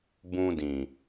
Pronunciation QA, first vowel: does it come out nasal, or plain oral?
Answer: nasal